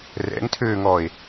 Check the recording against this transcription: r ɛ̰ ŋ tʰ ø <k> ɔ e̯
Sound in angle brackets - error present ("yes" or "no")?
yes